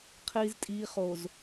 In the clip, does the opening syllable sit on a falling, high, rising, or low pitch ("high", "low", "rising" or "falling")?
low